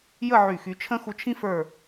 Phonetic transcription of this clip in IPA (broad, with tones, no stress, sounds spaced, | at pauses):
j ə˥˧ ʕ y˧˩ x y˧ t͡ʃʰ ə̃˥ x u˧ t͡ʃʰ ĩ˥ f ə˞˧˩